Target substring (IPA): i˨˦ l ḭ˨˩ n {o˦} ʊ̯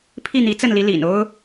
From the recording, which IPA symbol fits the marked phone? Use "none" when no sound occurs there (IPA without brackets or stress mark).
o˦